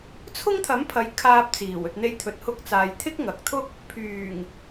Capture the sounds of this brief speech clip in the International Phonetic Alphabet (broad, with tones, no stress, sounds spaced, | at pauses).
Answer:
t͡sʰ ʊ˥ ŋ t̪ʰ ɐ˨˥ m pʰ ɐ˨˧ j kʰ aː˧ p̚ t͡s iː˨˩ w ɵ˨ t̚ n̪ e˧ j t̪ʰ ɵ˨ t̚ h ʊ˧ k̚ t͡s aː˨ j t̪ʰ ɪ˥ k̚ ŋ ɐ˨ k̚ t̪ʰ ʊ˥ k̚ | pʰ yː˨˩ ŋ